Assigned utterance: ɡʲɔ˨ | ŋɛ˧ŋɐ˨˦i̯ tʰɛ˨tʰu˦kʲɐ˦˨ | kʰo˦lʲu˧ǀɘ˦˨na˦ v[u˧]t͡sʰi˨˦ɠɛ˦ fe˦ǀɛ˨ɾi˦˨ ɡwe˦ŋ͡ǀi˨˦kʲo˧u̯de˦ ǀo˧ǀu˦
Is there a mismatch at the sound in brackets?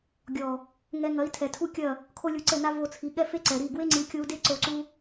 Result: yes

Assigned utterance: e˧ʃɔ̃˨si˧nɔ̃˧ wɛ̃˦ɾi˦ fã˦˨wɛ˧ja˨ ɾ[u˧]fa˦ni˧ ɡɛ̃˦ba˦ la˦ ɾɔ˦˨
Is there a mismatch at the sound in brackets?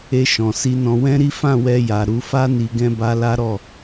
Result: no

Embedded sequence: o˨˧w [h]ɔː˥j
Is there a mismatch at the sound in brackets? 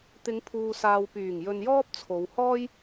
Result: no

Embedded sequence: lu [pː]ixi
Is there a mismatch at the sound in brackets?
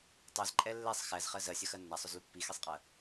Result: no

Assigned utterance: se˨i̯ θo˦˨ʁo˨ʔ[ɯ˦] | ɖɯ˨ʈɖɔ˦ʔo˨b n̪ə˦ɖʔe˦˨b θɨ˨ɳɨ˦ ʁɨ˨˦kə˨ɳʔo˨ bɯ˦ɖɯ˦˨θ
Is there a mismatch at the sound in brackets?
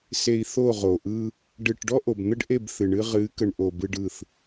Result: no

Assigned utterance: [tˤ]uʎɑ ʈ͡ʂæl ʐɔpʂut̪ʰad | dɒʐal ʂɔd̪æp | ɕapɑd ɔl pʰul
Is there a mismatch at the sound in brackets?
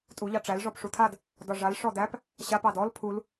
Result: yes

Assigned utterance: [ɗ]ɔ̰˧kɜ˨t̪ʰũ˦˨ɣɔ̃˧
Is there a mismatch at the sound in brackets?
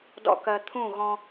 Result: yes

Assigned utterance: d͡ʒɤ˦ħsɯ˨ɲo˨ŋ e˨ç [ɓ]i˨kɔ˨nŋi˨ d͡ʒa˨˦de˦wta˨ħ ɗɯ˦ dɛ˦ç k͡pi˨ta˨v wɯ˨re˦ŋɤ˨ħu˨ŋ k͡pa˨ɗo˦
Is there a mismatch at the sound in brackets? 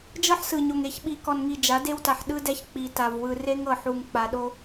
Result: no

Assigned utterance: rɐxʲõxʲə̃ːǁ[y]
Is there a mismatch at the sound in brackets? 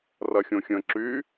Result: no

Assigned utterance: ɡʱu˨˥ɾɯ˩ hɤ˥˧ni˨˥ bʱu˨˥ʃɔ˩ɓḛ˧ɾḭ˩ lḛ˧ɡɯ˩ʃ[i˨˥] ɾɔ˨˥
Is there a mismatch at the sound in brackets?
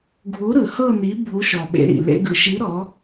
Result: no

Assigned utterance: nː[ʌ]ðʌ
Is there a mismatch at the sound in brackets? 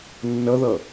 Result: no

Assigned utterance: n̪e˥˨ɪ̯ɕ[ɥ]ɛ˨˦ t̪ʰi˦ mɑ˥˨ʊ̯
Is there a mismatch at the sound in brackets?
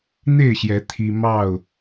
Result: yes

